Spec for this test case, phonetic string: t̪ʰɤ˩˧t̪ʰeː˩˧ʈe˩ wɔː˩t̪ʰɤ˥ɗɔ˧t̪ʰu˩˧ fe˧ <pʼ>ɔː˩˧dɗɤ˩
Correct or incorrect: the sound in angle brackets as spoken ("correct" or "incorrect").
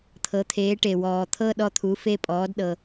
correct